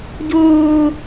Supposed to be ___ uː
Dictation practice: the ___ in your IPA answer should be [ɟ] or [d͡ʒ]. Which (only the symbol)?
ɟ